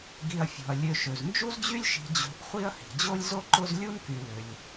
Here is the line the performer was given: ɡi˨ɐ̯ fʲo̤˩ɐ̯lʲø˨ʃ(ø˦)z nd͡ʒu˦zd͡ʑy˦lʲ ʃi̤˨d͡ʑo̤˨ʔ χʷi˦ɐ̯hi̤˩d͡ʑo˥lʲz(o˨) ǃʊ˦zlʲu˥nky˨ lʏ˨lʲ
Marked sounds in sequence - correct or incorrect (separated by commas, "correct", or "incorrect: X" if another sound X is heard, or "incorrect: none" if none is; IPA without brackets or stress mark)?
incorrect: ø˩, incorrect: o˥